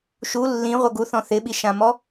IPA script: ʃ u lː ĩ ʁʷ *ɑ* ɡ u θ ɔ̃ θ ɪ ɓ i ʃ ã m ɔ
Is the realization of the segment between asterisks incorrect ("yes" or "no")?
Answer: yes